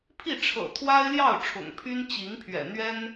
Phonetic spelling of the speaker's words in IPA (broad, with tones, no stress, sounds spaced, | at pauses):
pʰ i˥˩ ʈ͡ʂʰ ɤ̰˨˩ t̪ʰ w a˥ ɪ̯ l j ɑ˥˩ ʊ̯ ʈ͡ʂʰ ʊ̰˨˩ ŋ pʰ y˥ n t͡ɕ i˧˥ ŋ pʰ ɥ ɛ̰˨˩ n̪ ɥ ɛ˥ n